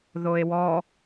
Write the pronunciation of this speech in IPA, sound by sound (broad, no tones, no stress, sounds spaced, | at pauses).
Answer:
ð o e̯ w ɔ